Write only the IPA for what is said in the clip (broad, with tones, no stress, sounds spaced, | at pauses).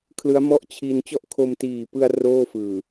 kʰ l ɯ˦˥ a̯ m ɔ˥˩ ʔ t͡ɕʰ i˧ n t͡ɕ ɔ˥˩ ʔ kʰ o˧ m t iː˨˩ p ɯ˧ a̯ r oː˥˩ f ɯː˨˩